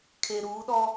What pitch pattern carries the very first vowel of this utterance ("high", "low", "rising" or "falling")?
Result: low